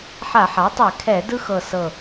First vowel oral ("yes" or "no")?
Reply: yes